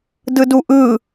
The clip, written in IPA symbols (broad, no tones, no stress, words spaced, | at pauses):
dɯduʔɯ